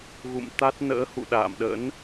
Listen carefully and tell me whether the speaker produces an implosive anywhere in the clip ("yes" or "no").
yes